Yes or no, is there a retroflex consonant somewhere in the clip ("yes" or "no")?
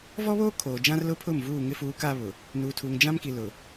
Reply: no